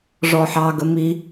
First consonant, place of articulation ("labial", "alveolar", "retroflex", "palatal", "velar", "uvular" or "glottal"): retroflex